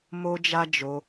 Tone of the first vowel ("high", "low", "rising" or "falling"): high